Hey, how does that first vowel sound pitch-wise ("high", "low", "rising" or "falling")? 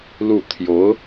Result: falling